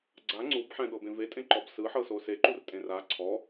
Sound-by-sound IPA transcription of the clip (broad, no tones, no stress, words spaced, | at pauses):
ɡ͡ǀa ŋ͡ǀubħɛ̃ɠɤbẽ vetʼẽǃɔb sɯħɤso seǃurtʼẽr a ǀʰɔ